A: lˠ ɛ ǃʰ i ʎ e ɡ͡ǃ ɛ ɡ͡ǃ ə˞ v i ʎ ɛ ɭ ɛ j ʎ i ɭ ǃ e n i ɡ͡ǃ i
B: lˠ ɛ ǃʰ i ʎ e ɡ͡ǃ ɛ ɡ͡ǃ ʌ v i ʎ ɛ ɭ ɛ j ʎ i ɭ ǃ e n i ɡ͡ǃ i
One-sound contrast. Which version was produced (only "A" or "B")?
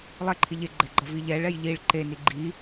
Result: B